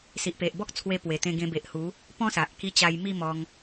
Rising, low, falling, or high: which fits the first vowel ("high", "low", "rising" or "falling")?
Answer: low